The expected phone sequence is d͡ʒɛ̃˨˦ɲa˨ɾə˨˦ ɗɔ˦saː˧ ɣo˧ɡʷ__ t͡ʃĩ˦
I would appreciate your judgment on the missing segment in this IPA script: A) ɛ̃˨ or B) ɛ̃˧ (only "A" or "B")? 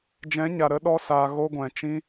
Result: A